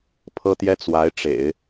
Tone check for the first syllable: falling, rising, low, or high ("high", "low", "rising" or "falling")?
high